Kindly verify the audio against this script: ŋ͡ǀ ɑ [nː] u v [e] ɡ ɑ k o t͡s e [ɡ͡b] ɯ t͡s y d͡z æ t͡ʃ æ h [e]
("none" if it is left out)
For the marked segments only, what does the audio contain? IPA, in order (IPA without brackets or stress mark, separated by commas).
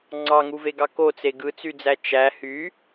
ŋ, e, ɡ, y